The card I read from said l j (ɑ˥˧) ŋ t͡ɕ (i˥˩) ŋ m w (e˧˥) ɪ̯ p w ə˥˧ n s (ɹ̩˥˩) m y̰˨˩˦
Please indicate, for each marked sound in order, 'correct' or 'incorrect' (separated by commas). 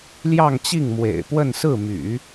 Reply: correct, correct, incorrect, correct